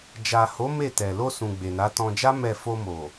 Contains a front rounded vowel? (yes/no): no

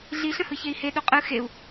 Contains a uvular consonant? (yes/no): yes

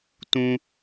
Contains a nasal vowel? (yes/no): yes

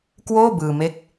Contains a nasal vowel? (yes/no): no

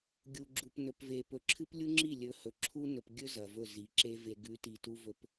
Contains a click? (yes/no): yes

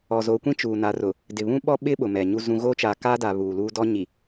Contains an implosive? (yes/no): yes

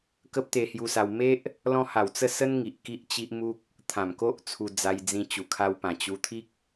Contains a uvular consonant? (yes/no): no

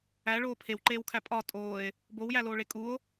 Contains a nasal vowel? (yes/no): no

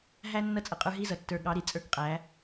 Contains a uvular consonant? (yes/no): yes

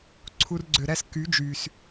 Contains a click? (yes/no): yes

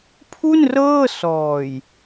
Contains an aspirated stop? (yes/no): yes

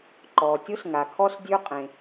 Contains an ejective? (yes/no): yes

